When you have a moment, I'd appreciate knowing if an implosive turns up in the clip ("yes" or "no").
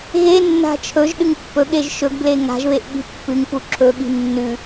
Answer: yes